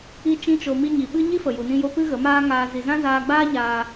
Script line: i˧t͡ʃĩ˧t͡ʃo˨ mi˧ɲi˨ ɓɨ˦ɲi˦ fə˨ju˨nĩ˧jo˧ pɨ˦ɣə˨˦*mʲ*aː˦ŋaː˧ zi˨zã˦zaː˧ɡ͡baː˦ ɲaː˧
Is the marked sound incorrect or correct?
incorrect